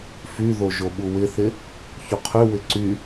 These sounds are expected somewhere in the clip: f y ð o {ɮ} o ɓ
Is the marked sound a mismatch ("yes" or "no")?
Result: yes